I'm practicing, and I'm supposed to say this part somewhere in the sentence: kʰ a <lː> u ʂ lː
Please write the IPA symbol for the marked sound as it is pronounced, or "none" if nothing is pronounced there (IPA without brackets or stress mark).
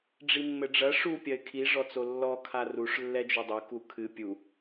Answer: r